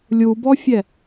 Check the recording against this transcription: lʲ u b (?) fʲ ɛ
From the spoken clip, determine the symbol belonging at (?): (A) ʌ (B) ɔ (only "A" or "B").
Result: B